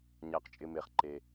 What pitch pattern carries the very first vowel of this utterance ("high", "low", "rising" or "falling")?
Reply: low